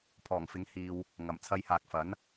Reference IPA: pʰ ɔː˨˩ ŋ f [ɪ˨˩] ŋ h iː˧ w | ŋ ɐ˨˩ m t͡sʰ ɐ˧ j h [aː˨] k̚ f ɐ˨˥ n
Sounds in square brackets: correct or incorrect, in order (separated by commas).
incorrect, correct